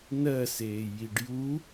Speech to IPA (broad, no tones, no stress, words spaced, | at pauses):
nɜseː jiɖju